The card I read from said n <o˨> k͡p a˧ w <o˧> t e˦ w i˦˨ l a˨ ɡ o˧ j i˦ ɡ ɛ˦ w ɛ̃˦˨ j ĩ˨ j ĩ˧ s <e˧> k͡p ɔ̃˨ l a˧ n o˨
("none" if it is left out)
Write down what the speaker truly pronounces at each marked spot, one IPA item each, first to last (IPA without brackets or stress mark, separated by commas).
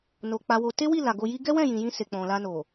o˨, o˧, e˨